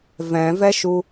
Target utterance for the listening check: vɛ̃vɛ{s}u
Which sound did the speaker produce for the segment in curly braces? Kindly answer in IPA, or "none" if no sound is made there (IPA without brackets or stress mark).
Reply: ʃ